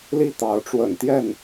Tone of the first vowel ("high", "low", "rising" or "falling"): falling